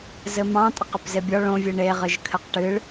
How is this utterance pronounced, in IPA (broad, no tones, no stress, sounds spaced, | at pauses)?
z ɘ m ɑ̃ tʼ ɘ q ɘ p z e bʲ ɔ ɭ õ vʲ ɨ ɳ e ʁ ɨ ʒ kʰ ɘ q ʈ ɨ ɭ